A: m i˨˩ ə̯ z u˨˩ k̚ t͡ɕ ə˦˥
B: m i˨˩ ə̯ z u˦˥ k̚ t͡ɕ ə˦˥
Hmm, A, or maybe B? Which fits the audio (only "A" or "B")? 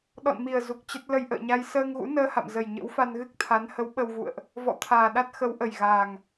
A